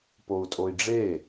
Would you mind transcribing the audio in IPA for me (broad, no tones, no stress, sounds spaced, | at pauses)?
p o u̯ tʼ o i̯ ɖ͡ʐ e